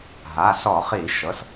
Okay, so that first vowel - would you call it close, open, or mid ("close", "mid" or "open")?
open